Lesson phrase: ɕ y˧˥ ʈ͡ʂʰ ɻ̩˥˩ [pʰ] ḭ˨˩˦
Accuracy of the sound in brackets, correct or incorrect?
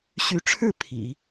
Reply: correct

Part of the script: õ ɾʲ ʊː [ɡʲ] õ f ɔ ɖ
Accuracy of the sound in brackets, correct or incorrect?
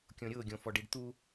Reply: correct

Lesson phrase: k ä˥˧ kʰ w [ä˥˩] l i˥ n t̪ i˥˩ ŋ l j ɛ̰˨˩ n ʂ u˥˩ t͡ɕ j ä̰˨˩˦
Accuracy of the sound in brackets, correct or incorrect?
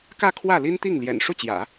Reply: correct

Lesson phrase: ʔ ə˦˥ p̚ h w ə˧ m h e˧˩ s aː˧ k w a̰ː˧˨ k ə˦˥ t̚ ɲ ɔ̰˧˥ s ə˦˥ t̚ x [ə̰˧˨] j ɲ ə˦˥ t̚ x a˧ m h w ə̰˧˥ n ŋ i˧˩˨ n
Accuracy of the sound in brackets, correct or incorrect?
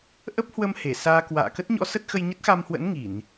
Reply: incorrect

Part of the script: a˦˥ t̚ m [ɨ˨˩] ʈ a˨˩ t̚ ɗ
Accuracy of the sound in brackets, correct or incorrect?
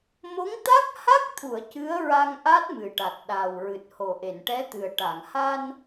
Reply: correct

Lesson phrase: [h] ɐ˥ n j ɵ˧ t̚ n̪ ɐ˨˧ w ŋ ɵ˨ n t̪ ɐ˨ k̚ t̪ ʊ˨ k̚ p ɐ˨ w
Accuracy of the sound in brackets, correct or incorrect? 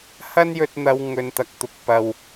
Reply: correct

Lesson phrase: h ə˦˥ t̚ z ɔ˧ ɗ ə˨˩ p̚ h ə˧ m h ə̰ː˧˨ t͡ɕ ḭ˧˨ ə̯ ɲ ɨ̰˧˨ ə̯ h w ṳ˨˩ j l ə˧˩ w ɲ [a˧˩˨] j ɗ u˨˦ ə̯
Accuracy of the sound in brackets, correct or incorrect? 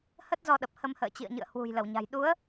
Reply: incorrect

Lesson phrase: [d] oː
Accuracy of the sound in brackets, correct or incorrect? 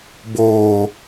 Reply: incorrect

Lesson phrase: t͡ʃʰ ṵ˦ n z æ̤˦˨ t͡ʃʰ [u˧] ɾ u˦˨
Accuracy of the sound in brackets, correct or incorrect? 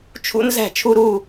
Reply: correct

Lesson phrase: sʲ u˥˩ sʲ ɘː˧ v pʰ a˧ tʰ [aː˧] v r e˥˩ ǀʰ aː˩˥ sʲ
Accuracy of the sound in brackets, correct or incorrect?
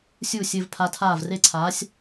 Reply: incorrect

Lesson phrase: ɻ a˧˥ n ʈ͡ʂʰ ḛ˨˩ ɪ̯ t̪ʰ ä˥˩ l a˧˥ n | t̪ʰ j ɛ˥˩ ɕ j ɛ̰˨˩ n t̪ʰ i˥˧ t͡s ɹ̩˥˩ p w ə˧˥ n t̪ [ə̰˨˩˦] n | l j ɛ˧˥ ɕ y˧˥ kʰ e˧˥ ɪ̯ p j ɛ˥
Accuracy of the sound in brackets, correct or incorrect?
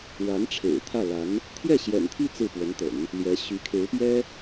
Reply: correct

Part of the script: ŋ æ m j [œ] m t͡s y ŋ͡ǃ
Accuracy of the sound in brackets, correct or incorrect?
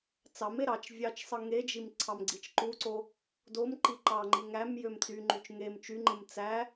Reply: incorrect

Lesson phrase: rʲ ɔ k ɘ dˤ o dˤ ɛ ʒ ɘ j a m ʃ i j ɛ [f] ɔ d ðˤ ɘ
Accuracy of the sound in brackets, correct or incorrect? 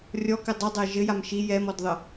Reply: incorrect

